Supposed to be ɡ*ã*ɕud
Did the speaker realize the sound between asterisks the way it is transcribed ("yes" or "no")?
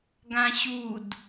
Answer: yes